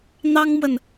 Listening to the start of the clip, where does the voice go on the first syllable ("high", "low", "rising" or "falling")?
high